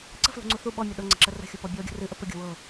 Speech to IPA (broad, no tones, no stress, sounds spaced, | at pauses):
ǀ ə̤ f l ṳ ŋ͡ǀ u θ u ɓ ɔ mʲ ʌ ɗ ɤ ŋ͡ǀ ə̤ ǁ ə r ə̤ xʲ u p ɔ bʲ ɔ ɡʲ ə̤ r ɨ ʔ ə p ə ɡʲ ṳ w ɤ